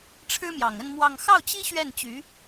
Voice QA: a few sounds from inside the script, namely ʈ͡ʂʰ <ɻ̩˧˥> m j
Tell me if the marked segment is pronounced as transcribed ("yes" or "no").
no